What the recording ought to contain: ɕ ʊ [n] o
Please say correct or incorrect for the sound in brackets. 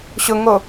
incorrect